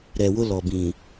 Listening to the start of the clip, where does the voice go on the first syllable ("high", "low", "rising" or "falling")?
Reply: low